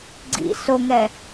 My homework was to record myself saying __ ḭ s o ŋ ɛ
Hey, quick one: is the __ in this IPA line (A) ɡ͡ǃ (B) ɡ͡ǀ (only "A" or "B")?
B